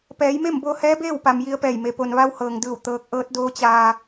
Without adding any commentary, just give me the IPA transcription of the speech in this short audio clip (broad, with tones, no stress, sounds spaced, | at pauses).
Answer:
p ɛː˩˧ j m e˥˨ m b o˧ h ɛː˧˥ b eː˥˨ w p a˩ m j i˧ ə̯ p ɛː˧˩ j m e˩ p o˩ n ʋ a˧ w h ɤː˩ ŋ d ɯː˧˩ w t̪ ɤː˧˥ k̚ ʔ ɤː˧˥ t̚ d oː˧˥ t͡ɕ aː˧